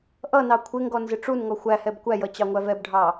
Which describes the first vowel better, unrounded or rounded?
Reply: unrounded